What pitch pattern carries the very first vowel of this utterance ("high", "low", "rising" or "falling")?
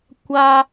high